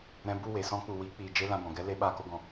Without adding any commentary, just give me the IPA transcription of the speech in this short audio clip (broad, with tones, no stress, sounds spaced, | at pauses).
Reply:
ɾ ɛ̃˧ b u˦˨ w e˨ s ɔ̃˦ k͡p u˨ w iː˨˦ k͡p iː˨ d͡ʒ e˦ l ã˧ b ɔ̃˨ ɡ ɛ˦ l e˧ ɓ aː˧ k o˧ ɡ ɔ̃˨